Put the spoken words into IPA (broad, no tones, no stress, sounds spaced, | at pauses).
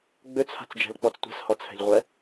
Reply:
ɡ͡b ø t͡sʰ a̤ t͡s d͡ʒ ɛ̤ l k͡p ɔ t͡s tʷ ɛ̤ s h ɔ t͡sʰ ɛ̤ ʎ ʁʷ ɛ